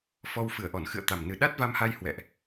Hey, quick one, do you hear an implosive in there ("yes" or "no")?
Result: yes